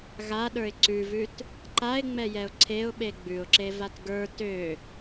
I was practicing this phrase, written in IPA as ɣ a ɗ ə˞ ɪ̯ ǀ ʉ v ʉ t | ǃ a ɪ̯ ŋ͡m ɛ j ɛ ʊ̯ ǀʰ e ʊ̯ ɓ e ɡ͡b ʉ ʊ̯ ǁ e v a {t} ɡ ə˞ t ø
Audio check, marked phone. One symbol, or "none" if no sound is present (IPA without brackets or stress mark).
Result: t